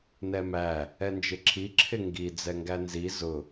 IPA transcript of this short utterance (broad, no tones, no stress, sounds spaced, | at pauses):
n ɛ m æ | ɛ n d͡ʒ ɪ ǁʰ i ǁʰ ɪ ŋ ɡ i d͡z ɛ ŋ ɡ æ n z i z ʊ